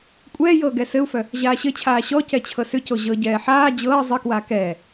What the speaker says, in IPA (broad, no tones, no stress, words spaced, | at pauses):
kʷʼɛːjɤː ɡɛsɘu̯fœ | ʑaːɕɘt͡ɕʰaː ɕɔcɛ t͡ɕʰɤsʏco ʑɤɟɛː ħaː d͡ʑɤː zˤɘkwaː kɛː